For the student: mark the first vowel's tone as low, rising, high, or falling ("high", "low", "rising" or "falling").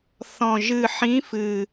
low